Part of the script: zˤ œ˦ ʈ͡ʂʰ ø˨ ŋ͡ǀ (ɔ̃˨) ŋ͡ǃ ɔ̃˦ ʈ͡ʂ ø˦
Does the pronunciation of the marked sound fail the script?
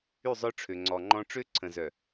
yes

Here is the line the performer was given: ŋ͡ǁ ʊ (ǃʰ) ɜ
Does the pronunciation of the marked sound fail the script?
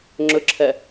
yes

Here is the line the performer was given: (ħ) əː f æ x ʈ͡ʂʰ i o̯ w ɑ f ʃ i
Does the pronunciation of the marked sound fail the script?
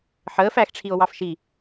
no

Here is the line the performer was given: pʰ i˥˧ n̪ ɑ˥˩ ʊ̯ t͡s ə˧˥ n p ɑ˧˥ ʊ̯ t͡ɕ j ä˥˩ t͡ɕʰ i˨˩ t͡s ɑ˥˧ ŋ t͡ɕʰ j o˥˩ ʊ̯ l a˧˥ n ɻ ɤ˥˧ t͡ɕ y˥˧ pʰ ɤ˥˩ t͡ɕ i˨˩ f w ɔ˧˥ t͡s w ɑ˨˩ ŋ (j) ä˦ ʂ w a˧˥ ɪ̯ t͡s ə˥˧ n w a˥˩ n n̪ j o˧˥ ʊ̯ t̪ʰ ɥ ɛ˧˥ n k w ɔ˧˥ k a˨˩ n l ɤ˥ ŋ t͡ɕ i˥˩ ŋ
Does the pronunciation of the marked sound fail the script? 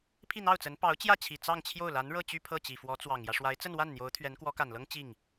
no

